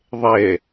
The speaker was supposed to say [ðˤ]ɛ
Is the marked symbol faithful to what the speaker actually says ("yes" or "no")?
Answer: yes